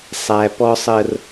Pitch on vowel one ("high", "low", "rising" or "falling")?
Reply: high